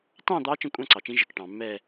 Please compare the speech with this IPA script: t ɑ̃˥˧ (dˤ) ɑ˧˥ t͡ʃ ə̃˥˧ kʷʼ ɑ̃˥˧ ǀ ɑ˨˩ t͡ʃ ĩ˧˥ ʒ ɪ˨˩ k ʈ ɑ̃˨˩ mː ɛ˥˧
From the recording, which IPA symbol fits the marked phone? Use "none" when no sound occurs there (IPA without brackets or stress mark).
d̪